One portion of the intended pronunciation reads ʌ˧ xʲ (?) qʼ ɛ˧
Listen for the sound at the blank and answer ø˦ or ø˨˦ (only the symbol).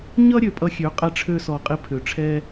ø˨˦